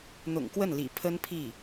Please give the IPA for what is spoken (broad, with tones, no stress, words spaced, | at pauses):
n̪ʊ̰˨˩ŋkwə˥˩nlḭ˨˩ pʰə˥npʰi˥˩